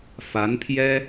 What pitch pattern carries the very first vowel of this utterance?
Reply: rising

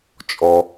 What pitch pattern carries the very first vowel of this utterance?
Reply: low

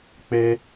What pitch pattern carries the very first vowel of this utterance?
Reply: high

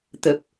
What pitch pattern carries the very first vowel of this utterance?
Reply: low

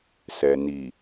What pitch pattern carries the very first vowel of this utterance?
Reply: low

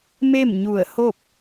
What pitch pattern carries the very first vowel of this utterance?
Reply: falling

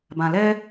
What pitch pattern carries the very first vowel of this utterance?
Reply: low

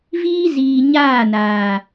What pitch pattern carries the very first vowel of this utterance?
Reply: high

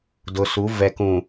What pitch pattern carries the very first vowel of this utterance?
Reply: low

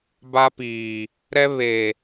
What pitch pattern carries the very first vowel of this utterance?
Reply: high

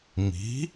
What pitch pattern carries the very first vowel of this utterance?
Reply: rising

